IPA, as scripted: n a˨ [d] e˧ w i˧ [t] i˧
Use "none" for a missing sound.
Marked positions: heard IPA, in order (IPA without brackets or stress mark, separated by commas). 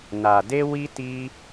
d, t